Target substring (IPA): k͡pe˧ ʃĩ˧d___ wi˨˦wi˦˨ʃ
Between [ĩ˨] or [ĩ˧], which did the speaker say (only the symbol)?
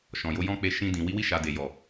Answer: ĩ˨